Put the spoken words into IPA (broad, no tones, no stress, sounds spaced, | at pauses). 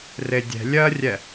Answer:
r e dʲ ɛ̤ lʲ ɜ rʲ ɛ